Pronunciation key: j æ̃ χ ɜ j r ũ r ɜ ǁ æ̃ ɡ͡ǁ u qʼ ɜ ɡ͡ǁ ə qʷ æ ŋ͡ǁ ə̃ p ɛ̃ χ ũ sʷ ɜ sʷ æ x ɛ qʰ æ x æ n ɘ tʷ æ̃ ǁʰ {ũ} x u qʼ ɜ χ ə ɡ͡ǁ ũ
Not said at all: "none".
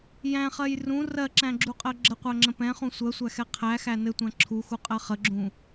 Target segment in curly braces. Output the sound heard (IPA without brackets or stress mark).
u